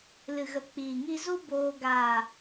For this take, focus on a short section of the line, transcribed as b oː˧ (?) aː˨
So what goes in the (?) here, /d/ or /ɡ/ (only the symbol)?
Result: ɡ